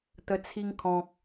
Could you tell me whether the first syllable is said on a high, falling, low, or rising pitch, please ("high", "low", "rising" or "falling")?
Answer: low